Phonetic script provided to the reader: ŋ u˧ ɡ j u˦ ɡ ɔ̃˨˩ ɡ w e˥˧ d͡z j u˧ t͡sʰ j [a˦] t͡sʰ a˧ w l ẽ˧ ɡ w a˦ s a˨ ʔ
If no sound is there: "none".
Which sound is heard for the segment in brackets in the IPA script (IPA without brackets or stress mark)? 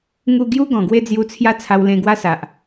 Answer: a˦